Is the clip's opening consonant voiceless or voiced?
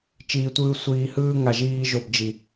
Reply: voiceless